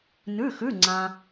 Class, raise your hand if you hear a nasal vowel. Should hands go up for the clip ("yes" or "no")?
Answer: yes